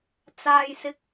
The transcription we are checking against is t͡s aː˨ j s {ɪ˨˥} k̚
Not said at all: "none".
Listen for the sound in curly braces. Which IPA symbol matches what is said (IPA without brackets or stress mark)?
ɪ˨˥